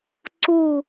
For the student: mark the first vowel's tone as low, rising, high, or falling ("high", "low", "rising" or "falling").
falling